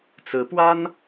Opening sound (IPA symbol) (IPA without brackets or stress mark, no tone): t͡s